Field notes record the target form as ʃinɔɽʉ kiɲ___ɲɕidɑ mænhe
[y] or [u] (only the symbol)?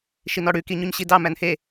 u